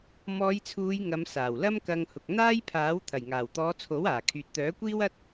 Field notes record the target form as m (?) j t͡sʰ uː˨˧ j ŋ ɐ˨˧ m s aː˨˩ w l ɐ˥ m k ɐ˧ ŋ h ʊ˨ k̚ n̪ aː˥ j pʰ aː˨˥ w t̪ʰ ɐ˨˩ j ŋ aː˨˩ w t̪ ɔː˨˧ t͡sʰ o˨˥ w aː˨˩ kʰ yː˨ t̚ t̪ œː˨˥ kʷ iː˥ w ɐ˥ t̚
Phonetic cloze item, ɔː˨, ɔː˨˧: ɔː˨˧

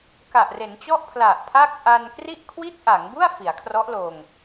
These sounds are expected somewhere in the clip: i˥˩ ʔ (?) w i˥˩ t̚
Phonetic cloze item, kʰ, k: kʰ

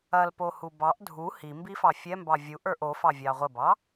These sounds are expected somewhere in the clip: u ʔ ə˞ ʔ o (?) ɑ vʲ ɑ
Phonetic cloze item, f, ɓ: f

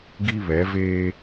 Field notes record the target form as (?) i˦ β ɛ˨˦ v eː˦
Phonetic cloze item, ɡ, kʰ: ɡ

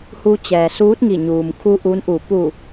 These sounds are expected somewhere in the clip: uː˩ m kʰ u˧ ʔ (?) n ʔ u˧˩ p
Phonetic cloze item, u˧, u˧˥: u˧˥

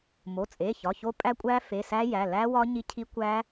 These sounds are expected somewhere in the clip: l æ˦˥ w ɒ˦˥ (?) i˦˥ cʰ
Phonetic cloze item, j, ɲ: ɲ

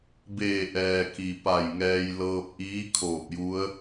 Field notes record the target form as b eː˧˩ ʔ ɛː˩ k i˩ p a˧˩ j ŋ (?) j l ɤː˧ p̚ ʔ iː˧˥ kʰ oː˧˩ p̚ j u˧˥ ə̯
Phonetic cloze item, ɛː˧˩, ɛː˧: ɛː˧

